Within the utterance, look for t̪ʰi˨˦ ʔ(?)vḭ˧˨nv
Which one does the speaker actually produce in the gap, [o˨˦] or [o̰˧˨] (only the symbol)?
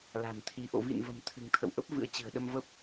o̰˧˨